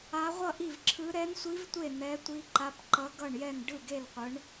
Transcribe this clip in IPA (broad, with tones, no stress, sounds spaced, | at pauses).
a˦˥ ʁʷ ʌ˥˧ ʔ i˥˧ v ǁʰ ɯ˦˥ ɾ ɛ˦˥ n sʷ i˦˥ v tʷ e˥˧ n̪ ɛ˦˥ tʷ i˦˥ ǃ a˦˥ p ǃ ʌ˦˥ ɡ ʌ˥˧ ɳ j ɛ˥˧ n ɖ ɯ˥˧ ɡ e˥˧ l qʷ ɯ˦˥ ɳ